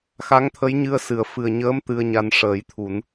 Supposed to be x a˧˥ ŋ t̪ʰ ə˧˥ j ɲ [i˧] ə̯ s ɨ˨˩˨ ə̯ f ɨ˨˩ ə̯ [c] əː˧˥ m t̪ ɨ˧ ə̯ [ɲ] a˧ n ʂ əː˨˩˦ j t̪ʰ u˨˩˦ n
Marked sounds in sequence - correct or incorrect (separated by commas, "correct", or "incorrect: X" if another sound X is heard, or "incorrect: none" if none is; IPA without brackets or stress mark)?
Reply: incorrect: ɨ˧, incorrect: ɲ, correct